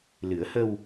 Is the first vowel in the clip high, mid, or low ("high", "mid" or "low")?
high